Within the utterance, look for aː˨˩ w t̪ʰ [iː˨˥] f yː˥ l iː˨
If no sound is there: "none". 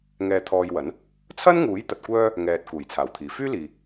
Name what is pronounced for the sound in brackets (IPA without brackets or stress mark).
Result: iː˨˩